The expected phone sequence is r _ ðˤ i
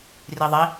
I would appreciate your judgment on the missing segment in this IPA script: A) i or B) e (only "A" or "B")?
A